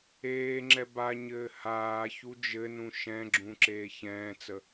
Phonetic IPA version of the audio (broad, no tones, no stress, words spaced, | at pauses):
eː ŋ͡ǁɛbaɲɘː haː çud͡ʒɘnũ ʃɛ̃ɡ͡ǁũ ǁeːçɛ̃ːt͡sə